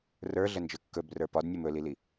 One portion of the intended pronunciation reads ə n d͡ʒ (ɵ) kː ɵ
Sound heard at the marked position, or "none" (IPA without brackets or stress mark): ɵ